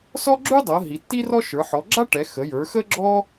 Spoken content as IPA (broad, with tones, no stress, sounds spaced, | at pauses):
s ɔ˥ ɡ͡ǁ ʉ˥ dˤ ɤ˩˧ ɦ i˩˧ tː i˥ r ɔ˥ ʃ ə˞˩˧ ħ ɔ˩˧ ɡ͡ǁ a˥ ʈ ɛ˩˧ x ə˩˧ j ə˞˩˧ x ə˥ ɡ͡ǁ ɔ˥